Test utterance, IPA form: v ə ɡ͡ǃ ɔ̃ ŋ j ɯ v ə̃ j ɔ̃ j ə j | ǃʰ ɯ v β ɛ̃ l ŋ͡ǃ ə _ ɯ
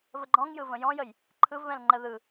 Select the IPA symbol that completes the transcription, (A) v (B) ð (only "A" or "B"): B